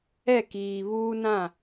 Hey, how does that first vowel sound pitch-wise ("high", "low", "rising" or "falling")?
falling